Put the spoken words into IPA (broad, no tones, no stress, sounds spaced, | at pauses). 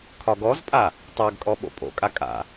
kʰ ɒ ɡ ɔ z pʼ a | tˤ a ɡ kʼ ɔ ɓ o̰ pʼ o̰ kʼ a kʼ a̰